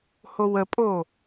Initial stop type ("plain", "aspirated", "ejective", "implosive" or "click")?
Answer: ejective